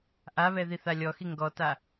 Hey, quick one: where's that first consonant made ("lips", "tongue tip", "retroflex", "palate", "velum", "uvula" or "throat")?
throat